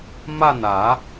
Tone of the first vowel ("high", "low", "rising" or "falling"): falling